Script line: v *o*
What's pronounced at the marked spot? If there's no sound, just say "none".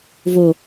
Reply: o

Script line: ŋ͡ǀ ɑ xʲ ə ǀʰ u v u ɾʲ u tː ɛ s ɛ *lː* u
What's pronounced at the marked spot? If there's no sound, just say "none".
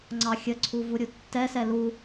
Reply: l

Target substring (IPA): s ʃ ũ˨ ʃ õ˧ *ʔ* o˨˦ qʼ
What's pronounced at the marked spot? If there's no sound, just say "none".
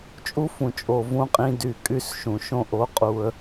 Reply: ʔ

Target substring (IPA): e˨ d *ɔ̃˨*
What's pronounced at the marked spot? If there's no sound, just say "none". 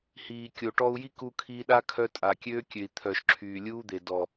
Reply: ɔ˨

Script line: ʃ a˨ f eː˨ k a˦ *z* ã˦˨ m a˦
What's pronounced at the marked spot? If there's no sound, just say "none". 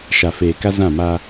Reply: z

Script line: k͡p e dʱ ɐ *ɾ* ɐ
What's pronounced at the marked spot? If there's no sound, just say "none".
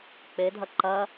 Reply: ǃ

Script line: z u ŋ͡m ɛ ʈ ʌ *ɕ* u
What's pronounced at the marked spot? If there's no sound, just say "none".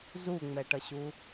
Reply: ɕ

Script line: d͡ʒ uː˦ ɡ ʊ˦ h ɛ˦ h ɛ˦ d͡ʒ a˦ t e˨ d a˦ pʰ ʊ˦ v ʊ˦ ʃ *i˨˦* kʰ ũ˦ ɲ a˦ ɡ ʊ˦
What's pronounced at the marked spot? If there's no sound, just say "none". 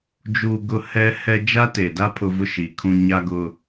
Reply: i˨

